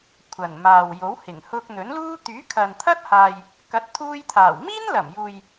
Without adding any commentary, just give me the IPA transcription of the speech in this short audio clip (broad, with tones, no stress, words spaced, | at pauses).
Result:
kʷʰɐ˨˩nmaː˨wjo˨˥whɪ˨˩ŋ hʊ˧k̚n̪ɵ˨˥nluː˥ t̪yː˨˥kʰɐ˨nt̪ʰɐ˥t̚haː˨j | kɐ˨˥t̚t̪ʰuː˧jt̪ʰaː˨˩w miː˥nlɐ˨˩mjuː˨j